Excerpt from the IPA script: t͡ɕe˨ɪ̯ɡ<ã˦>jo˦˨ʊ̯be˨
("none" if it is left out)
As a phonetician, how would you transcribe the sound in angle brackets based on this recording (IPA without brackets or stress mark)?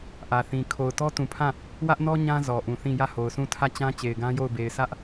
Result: ã˦